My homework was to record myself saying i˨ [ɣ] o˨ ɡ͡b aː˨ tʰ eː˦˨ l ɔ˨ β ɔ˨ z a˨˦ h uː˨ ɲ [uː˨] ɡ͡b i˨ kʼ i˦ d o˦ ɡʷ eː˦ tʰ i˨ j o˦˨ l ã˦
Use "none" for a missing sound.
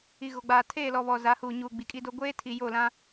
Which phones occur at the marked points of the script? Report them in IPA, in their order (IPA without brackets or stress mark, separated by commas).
ɣ, uː˨